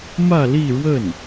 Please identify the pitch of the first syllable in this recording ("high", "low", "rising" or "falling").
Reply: falling